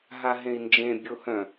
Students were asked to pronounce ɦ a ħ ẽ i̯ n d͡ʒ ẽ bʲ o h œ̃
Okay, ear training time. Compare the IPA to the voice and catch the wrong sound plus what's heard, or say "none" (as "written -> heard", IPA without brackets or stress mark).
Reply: ħ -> ɦ